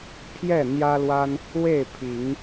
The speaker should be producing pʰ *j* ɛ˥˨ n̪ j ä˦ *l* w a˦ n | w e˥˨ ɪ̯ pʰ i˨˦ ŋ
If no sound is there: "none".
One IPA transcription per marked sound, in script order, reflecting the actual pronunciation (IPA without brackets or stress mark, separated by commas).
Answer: j, l